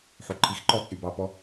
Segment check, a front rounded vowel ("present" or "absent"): present